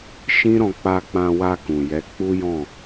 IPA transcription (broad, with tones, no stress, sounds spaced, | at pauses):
ʃ ĩ˦ ɾ ɔ̃˧ k͡p a˧ k͡p ã˧ w a˧ k ũ˨ j ɛ˨˦ k͡p u˦ j ɔ̃˦˨